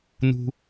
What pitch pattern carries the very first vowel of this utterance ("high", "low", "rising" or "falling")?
high